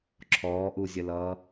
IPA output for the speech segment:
ǁʰɔːʔuzʲəlʌː

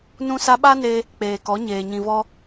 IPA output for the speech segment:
nũ˧sa˧ɓa˦ne˧ | k͡peː˨kɔ˨˦ɲeː˨ ɲĩ˨vɔ˧

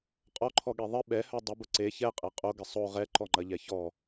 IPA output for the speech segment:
qʼɔǃʰɔɠe ðˤɪ ɓɛhœ dˤʊbʊ ǀe çɛqʼɛ qʼoɡɪ sˤo ʁɛǃɔŋ͡ǃɐʎɛ çɔ

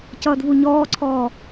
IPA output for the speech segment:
cʌːdvuɲɔːǀʰɔː

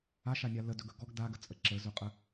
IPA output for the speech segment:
aʃanʲa lədɵɡɵ ɡɔɡ daɡət͡sʼə ǁəzɵqʼə

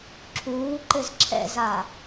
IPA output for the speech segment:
ǁʰuːǃɘz ǁʰɛ̰za

